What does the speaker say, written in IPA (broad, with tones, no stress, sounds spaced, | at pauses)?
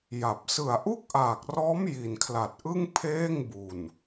j a˨˩ p̚ s ɯ˨˩ a̯ ʔ u˥˩ k̚ ʔ aː˨˩ k̚ r ɔː˦˥ m j i˨˩ n kʰ l a˨˩ t̚ ʔ ɯ˥˩ ŋ pʰ eː˥˩ ŋ b u˨˩ n